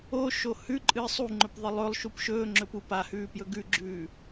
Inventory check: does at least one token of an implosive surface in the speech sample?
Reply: no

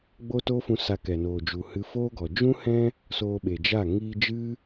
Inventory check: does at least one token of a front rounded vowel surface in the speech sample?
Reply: no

